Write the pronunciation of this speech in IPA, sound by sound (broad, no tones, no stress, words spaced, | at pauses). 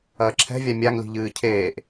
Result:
ɐːǁʰɛ̤vʲa mʲaŋli̤ ʎɨːcʰeːʔ